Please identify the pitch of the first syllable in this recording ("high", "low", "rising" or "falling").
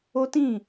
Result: high